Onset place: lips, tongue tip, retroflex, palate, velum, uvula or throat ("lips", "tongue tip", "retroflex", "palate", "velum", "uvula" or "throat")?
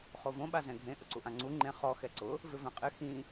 uvula